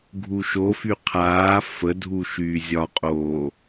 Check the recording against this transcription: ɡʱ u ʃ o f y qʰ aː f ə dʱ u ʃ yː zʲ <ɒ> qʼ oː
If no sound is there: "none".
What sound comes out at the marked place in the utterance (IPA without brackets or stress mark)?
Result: ɒ